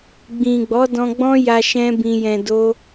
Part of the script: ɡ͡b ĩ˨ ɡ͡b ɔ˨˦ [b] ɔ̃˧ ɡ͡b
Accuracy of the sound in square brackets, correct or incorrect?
incorrect